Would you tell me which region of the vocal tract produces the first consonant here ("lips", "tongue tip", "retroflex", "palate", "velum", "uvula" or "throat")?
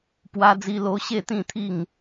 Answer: lips